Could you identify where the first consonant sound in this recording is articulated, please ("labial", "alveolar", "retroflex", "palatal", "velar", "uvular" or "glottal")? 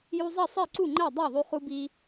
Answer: palatal